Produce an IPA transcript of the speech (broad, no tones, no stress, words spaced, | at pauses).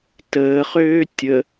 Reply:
təːχøː tʲə